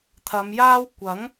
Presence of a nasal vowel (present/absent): absent